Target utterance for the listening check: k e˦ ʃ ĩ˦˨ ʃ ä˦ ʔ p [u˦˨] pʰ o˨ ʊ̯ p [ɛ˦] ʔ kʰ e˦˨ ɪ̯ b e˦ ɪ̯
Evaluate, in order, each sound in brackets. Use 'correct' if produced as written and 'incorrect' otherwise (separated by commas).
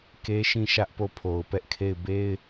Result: incorrect, correct